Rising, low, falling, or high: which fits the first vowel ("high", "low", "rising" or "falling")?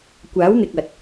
rising